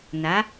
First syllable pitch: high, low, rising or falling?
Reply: rising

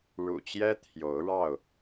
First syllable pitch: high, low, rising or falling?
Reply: low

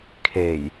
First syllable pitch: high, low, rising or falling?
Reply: low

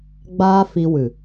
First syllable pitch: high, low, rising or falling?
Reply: high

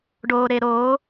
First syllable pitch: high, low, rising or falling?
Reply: low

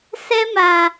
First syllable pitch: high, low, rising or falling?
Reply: high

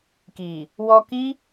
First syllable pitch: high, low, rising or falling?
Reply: low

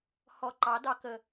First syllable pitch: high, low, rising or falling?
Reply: low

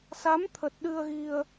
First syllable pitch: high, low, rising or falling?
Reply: rising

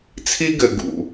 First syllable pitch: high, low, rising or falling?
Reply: high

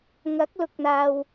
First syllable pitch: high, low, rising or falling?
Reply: rising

